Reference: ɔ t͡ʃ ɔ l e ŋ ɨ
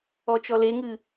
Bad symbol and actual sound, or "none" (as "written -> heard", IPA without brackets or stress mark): none